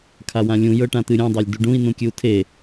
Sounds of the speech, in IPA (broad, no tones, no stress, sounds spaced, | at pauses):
kʰ a w ã lʲ ũ j ɤ ʈ ã t̪ ɨ ɾʲ ã dˤ a lʲ d u ɖ ũ i̯ n ũ kʲ ɨ u̯ tʰ e